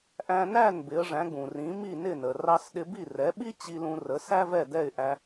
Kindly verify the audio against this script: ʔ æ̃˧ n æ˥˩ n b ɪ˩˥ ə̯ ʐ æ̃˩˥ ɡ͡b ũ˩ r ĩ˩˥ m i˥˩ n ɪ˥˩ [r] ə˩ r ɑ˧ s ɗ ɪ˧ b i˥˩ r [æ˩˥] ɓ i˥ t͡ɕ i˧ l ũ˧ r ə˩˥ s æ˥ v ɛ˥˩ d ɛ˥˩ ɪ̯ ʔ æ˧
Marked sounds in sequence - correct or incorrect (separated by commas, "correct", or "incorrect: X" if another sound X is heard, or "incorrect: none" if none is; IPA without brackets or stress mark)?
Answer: incorrect: n, incorrect: ɛ˩˥